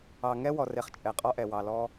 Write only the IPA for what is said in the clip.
ɑ˨ ŋ ɛ˦ w ɔ˨ r e˨ χ t͡ʃʼ ɛ˨ qʼ ɔ˦ ʔ ɛ˨ w ɑ˨ l ɔ˦

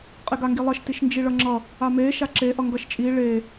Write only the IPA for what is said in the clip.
qʼ e ɡ a ŋ ɡ i lˠ ʌ ʃ t i ʃ n d͡ʒ i ɭ ʌ ŋ͡ǁ ʌ | a m e ʃ a ǁ e ʔ ʌ ŋ ɡ ʌ ʃ t͡ʃʼ i ɭ e

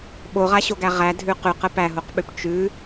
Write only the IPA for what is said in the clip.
ɓ o ʁ a ɕ o ɡ æ ʁ æ dʱ ʉ q ʉ q ə p æ ɦ o q ɓ ʉ p t͡ʃ ʉ

